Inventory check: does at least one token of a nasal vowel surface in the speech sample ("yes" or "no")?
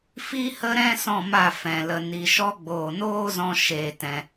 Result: yes